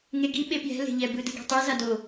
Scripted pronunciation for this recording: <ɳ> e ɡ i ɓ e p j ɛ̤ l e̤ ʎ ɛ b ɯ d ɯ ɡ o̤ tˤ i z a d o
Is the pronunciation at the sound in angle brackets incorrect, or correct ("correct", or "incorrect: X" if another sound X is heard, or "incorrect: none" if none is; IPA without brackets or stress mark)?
incorrect: ŋ